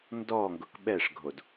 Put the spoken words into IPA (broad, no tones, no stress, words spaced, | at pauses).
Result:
ndɔŋɡʊk ɓɛʂɡʱod